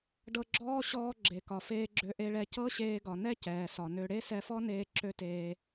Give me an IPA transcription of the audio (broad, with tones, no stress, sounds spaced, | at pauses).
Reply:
ɖ ɤ˧ ɡ͡ǁ ɔː˥ ɕ ɔː˧ ɡ͡ǁ e˩ k ɒ˩ f eː˧ ɡ͡ǁ ø˧ ʔ e˧ ɭ ɛ˧ c ɤ˥ ɕ eː˧ ɡ ɒ˩ n ɛ˥ c ɛː˩ s ɒ˩ n ø˧ ɽ e˥ s ɛ˧ f ɔ˥ n eː˧ ǁ ø˥ t eː˧